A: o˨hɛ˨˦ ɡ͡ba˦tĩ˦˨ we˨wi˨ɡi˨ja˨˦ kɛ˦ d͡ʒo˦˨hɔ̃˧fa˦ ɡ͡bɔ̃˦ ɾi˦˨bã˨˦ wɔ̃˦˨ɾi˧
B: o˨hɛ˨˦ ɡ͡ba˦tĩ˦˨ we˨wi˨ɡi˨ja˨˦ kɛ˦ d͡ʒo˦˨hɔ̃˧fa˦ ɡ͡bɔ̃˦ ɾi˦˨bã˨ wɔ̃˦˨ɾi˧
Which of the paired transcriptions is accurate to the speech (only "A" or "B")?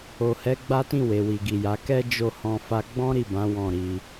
A